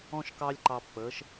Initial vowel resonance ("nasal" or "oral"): nasal